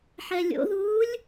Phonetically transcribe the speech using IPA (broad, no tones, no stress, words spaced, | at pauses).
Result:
ħɛlʲo̰ðuːlʲ